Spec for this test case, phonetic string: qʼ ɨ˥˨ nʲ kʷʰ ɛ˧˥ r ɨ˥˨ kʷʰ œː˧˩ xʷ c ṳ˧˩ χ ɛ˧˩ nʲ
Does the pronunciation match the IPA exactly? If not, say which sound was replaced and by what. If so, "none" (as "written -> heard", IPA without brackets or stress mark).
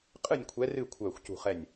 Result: none